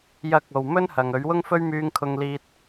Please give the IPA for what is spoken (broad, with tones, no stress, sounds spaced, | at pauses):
j ɐ˧ k̚ o˨ w m ɵ˥ n h ɐ˨ ŋ ɵ˨˥ ɥ w ʊ˥ ŋ f ɵ˥ ɥ m yː˧ ŋ kʰ ʊ˧ ŋ l iː˧ t̚